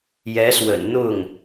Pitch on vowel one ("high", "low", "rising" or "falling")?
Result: rising